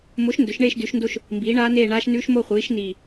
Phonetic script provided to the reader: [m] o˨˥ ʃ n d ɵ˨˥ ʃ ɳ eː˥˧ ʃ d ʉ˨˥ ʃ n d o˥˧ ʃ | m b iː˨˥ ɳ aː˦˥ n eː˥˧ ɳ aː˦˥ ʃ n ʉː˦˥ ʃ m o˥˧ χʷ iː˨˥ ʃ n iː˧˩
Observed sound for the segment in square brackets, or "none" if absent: m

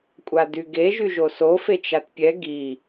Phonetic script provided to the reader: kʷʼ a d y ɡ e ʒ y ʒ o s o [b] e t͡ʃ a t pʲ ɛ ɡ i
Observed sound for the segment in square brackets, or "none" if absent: f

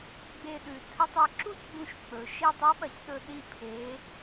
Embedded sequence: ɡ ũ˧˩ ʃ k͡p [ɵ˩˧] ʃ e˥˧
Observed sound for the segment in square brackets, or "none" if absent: ɵ˩˧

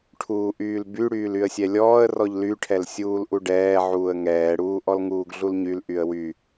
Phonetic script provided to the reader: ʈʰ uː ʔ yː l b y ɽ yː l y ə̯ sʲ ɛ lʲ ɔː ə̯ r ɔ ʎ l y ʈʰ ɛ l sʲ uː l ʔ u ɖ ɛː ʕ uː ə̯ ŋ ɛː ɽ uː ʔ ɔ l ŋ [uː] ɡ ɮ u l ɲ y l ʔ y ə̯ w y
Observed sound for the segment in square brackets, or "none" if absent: uː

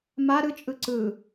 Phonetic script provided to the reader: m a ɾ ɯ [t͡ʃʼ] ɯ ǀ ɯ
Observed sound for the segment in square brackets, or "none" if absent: t͡ʃʼ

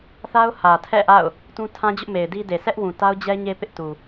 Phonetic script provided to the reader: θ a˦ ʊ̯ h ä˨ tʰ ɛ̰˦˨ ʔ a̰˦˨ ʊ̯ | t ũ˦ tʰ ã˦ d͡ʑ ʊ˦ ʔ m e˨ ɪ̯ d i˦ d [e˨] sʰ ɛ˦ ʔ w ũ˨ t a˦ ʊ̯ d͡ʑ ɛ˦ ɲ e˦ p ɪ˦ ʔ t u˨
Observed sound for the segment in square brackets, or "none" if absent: e˨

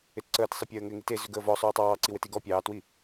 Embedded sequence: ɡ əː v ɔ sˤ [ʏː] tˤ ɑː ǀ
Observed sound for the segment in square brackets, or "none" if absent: ʏː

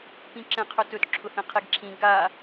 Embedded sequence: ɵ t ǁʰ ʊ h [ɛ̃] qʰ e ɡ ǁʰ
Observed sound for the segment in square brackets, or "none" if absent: ẽ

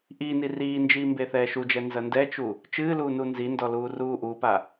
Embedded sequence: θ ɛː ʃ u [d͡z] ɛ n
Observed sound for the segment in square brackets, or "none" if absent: d͡ʒ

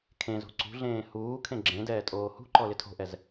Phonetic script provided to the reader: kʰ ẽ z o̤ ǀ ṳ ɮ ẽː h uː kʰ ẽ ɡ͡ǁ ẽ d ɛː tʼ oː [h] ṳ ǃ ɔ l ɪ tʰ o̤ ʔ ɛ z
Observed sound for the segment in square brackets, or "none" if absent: h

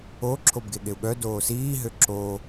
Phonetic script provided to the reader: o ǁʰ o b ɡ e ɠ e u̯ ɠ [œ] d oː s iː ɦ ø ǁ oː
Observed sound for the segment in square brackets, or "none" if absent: œ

